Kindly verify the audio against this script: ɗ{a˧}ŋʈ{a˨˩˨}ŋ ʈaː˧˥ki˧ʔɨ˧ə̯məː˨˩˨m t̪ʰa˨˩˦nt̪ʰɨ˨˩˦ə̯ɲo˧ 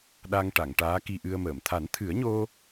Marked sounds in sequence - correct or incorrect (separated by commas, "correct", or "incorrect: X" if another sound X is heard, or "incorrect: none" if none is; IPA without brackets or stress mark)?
correct, correct